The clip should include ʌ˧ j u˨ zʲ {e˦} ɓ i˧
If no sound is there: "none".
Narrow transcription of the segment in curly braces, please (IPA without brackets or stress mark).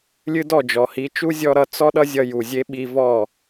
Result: e˦